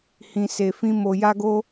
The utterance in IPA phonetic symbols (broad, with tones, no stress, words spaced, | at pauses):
hĩ˧se˧fĩ˦ mo˧ja˦ɡo˦